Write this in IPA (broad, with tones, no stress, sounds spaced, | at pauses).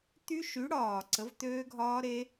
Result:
t̪ y˦˥ ʃ y˨˥ ɽ ɒː˨˩ ǀ ə˨˥ v t̪ øː˦˥ ɡʱ ɒː˦˥ ɾ e˦˥